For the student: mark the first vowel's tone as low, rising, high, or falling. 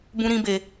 high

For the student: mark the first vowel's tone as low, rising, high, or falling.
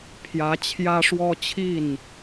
rising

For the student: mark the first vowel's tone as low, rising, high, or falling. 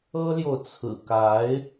high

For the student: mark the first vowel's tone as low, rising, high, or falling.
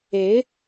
rising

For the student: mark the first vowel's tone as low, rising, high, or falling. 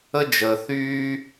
high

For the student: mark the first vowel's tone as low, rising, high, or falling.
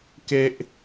high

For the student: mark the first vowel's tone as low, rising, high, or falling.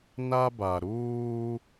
high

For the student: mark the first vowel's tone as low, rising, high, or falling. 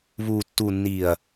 low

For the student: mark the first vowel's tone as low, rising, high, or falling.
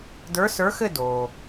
rising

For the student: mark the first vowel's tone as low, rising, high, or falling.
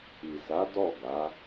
low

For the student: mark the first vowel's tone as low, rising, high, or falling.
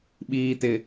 low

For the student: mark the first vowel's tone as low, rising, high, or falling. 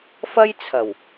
high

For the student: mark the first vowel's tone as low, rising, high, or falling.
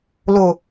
low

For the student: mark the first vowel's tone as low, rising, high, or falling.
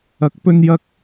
rising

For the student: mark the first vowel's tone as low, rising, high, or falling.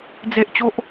high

